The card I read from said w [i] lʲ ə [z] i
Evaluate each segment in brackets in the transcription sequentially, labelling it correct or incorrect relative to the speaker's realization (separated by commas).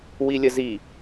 correct, correct